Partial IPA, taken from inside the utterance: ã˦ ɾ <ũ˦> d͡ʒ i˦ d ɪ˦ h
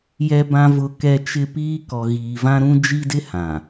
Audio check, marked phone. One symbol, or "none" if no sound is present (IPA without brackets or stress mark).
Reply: ũ˦